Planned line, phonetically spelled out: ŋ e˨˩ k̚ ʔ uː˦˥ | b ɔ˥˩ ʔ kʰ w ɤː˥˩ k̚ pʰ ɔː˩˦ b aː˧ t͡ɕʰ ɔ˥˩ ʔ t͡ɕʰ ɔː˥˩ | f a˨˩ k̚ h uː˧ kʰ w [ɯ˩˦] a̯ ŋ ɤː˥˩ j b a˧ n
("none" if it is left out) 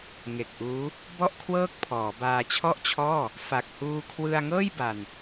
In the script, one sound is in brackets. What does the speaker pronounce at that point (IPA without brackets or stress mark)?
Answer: ɯ˧